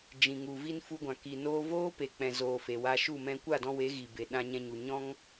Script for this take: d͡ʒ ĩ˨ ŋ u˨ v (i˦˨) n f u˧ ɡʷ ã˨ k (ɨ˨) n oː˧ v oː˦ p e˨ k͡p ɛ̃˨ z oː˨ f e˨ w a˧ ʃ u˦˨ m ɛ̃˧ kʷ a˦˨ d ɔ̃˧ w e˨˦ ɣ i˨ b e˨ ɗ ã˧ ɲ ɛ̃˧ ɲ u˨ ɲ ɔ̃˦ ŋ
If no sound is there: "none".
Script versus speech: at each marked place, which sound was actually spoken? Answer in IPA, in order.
i˧, i˨

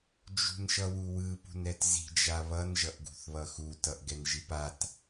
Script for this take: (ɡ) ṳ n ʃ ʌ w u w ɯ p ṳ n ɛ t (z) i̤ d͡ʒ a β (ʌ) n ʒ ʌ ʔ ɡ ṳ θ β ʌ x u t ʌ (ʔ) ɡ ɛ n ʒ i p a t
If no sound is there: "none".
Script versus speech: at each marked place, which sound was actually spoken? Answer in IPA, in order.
d͡ʒ, z, ʌ, ʔ

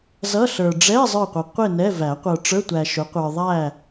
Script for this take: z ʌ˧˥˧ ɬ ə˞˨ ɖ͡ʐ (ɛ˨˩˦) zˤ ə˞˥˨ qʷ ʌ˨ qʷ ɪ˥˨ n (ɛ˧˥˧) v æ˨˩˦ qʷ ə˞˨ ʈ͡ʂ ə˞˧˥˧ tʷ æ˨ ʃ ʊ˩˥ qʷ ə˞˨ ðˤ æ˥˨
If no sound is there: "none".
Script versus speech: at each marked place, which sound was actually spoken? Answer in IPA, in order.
ɛ˧˥˧, ɛ˧˥˧

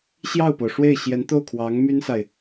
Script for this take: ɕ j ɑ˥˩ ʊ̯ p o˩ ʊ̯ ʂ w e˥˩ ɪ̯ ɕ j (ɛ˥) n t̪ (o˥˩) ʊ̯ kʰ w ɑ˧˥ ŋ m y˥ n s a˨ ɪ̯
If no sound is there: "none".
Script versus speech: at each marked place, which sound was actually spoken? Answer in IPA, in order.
ɛ˧˥, o˥˩

